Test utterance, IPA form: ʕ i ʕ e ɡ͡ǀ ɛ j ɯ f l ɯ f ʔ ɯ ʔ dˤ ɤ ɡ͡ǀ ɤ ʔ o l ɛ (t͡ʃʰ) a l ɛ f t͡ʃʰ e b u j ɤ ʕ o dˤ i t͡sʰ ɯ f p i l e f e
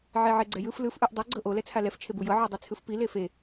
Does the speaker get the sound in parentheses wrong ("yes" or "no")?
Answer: yes